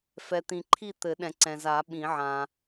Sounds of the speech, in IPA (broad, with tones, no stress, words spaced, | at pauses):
fɛ˨t̪ĩ˨ǃʰi˥˨ t̪ɘ˨˩˦ɗɛ̃˨ǀɛ̃˨za˨˩˦ ɓĩ˨˩˦ʕã˨